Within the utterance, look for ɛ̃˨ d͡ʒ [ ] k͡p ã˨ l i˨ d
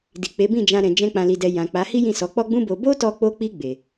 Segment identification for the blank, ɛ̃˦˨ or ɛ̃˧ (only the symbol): ɛ̃˧